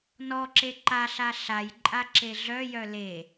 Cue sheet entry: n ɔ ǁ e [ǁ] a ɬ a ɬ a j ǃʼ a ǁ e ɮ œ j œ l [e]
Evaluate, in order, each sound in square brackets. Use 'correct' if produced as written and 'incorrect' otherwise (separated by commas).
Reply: incorrect, correct